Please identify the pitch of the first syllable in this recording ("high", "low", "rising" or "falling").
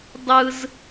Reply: high